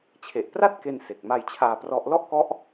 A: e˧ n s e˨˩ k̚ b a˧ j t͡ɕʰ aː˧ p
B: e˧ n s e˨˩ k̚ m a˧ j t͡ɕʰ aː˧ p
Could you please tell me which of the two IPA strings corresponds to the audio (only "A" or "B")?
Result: B